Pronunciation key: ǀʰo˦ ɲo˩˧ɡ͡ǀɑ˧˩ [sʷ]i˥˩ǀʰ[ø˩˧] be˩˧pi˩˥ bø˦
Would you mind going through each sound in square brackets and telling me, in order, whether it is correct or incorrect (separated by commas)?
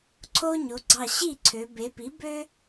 incorrect, correct